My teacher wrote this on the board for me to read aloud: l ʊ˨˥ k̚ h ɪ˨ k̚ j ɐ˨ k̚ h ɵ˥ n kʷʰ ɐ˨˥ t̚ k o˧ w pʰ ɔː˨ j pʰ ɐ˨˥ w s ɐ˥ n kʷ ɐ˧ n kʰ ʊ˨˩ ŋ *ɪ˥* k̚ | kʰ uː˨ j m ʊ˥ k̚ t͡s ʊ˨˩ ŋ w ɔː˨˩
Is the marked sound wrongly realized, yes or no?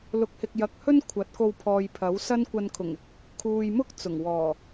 yes